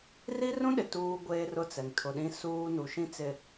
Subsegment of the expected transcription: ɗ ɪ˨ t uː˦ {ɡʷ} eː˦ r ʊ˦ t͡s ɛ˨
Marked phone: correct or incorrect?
correct